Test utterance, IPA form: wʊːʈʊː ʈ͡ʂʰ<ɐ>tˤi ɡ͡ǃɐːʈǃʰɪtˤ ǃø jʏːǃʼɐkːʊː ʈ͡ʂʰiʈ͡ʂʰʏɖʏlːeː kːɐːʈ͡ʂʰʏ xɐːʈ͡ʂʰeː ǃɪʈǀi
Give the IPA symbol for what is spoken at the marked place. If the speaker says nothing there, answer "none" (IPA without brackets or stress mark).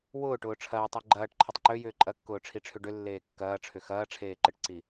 ɐː